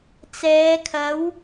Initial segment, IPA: t͡s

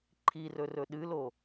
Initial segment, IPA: ǃʰ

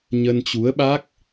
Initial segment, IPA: ɲ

